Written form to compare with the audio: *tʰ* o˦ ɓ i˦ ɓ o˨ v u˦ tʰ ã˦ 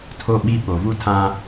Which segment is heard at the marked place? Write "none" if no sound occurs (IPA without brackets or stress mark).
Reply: tʰ